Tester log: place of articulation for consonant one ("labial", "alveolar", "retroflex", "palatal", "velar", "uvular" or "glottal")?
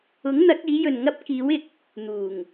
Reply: velar